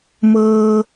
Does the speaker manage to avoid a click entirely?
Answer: yes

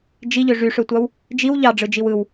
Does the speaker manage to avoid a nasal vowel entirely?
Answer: yes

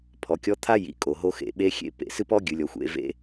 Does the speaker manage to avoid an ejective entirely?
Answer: no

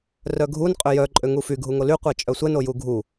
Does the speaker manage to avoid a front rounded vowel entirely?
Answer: no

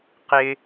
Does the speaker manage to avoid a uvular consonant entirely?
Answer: no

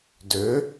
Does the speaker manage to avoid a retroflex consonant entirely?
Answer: yes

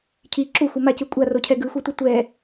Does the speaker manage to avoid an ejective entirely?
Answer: no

